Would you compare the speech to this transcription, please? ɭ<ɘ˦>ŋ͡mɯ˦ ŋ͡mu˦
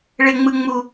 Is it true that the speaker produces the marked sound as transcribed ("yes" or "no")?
yes